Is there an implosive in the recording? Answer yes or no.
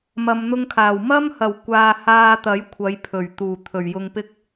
no